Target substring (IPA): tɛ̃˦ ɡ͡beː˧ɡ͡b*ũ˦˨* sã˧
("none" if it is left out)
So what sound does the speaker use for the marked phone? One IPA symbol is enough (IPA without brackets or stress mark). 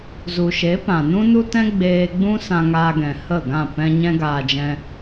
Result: ũ˦